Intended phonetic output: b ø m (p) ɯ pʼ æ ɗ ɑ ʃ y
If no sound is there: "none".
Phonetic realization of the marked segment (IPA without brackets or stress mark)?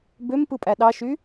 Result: p